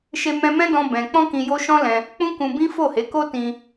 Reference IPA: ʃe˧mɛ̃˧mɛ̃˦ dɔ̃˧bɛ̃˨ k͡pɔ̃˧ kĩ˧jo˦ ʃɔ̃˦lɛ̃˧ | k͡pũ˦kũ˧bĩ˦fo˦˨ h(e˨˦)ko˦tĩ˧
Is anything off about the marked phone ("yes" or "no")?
no